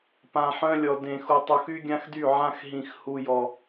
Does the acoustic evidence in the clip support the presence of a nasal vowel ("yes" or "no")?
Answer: yes